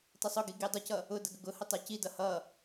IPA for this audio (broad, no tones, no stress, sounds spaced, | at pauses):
tˤ ə sˤ ʊ ɡ i ɡ i dˤ ʊ c ʌ | ʊ d ə ɡ ə ɡ ʊ h ə tˤ a c i d ʌ h ʌ